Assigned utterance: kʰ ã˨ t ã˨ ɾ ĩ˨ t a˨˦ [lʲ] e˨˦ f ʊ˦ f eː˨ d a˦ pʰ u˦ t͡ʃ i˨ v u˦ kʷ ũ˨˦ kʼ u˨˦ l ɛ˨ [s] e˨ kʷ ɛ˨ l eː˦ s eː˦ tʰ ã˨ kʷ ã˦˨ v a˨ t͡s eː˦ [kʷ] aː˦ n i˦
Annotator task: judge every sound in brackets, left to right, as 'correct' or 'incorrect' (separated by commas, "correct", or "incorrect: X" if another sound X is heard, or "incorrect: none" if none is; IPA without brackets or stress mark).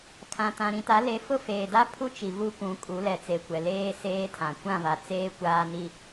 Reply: incorrect: l, incorrect: t͡s, correct